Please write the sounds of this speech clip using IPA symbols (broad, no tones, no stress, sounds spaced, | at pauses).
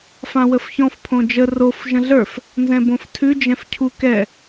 f ã w ə f ç ɔ̃ f pʰ õ d͡ʒ ə r o f ʒ ə̃ ɮ ə˞ f | n z ɛ̃ b õ f tʰ ʉ d͡ʒ ɛ̃ f cʰ u k ɛ